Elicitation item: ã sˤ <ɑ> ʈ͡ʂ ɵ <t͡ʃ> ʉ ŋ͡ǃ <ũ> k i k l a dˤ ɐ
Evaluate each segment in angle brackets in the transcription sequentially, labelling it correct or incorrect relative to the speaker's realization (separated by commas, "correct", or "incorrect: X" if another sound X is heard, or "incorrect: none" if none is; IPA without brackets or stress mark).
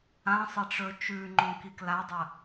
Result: incorrect: ɐ, correct, incorrect: õ